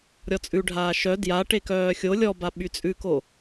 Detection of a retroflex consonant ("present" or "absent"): present